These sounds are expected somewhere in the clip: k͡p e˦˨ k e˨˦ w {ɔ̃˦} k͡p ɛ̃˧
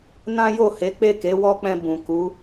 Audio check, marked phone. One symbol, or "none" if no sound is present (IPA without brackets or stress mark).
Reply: ɔ˦